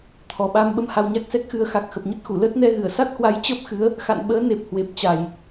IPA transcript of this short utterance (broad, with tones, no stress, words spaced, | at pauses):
t̪ʰɔ˨˩ɓa˧m ɓə˧mha˧wɲa˦˥k̚sɛ˦˥k̚ xɨ˨˩ə̯xa˨˩k̚ xə˨˩p̚ɲə˦˥t̚xu˧˩ləː˦˥t̚ nɛ˧ ɣɨ˧˩ə̯sa˦˥t̚hwa˨˦j t͡ɕəː˦˥p̚xɨ˨˦ə̯ | xa̰˧˨nɓəː˨˦ne˨˩p̚ hwe˨˩p̚t͡ɕa˨˩j